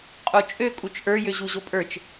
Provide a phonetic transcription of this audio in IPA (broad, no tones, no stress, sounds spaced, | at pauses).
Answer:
qʼ o t͡ʃʼ ø kʼ u t͡ʃ ʔ ə˞ j ø ʑ u ʑ o pʼ ə˞ t͡ʃ